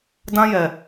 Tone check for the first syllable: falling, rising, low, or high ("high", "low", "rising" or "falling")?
high